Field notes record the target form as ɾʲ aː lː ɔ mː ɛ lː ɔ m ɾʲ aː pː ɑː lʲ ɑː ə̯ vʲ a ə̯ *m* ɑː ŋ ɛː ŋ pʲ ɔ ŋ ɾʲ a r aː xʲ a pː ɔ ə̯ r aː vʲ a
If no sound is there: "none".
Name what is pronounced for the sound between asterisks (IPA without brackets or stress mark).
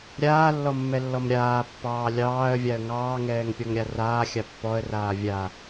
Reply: ŋ